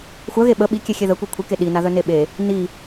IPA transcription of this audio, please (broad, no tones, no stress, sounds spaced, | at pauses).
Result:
xʷ œ ɣ e ɓ ə ɓ i kʲ e xʲ e ð ə kʷ i kʷʰ i k e ɗ i n a ð œ n e ɓ e | n i